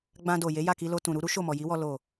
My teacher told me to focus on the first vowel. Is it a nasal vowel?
yes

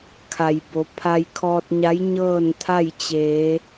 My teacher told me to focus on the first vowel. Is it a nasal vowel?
no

